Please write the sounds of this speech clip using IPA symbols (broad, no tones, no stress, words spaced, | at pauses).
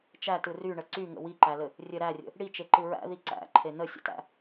t͡ʃætɯ ryɳə ǀyŋə̰ wiǃælɘ | rʲɘ ɾærʲə̰ | ɽit͡ʃeǃɯ ɹæ̰ði ǀæ̰ǃʰe nəsʲə̰tæ̰